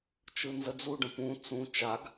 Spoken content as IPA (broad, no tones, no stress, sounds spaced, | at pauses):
t͡ʃ ɯ n z ə d͡z u ɖ ə̃ p ũ t͡s ũ t͡ʃ a ɡ